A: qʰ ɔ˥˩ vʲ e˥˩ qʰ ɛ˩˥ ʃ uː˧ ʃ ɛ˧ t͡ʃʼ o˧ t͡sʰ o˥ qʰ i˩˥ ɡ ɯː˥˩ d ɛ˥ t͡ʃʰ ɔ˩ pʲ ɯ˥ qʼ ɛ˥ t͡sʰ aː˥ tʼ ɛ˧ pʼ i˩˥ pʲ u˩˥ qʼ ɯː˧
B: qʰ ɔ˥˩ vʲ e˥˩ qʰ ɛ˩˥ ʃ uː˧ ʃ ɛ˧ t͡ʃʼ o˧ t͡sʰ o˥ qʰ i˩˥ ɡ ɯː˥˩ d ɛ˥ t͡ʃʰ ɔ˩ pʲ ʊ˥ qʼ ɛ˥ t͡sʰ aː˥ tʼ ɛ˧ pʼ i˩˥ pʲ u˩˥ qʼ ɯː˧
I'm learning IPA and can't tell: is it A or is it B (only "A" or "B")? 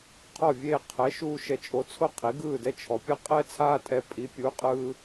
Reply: A